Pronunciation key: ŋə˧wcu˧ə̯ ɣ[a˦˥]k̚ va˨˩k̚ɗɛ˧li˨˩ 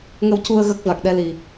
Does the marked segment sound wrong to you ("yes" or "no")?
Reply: yes